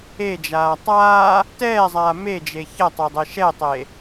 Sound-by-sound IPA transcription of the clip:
e d͡ʒ aː tˤ aː | t ɛː zˤ aː m e d͡ʒ e ç ɐ tˤ e dˤ e ʃ ɛ tˤ e

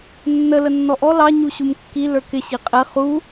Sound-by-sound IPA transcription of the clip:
nː ə l ə nː ɔ ʔ ɔ l ɑ ɲ u ɕ u m kː i l ə˞ k ɪ ɕ i qʼ ɛ χ u

